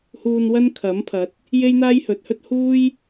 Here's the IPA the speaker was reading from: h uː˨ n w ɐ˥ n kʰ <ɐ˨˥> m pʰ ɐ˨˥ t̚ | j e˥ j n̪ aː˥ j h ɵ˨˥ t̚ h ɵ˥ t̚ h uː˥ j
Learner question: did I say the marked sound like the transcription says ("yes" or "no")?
yes